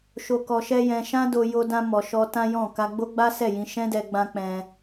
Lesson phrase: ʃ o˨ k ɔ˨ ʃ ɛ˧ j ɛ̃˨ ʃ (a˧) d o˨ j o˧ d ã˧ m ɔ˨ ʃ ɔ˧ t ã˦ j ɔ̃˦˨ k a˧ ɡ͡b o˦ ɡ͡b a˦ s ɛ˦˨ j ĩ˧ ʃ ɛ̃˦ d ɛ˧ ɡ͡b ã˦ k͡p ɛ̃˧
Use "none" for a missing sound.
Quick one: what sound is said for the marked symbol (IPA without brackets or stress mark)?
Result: ã˧